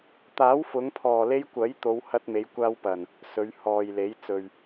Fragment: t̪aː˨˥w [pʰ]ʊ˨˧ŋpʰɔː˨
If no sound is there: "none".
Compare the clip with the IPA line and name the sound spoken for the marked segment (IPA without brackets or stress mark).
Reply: f